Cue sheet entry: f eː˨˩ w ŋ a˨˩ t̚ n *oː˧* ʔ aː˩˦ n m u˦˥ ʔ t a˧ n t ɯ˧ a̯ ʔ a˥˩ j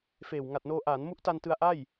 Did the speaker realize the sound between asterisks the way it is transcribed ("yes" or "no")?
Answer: yes